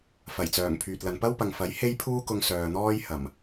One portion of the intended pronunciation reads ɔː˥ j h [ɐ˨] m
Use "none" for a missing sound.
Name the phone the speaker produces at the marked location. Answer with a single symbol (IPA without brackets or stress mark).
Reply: ɐ˨˩